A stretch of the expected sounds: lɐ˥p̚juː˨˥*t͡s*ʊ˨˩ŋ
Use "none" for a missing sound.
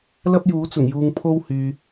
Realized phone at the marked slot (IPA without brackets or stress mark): t͡s